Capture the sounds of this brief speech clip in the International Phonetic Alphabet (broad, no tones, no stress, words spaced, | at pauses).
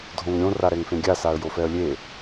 dʱõŋɾʲõ raɾɛŋfẽɡʲa saə̯jofɛə̯lʲe